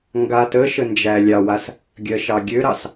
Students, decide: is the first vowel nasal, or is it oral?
oral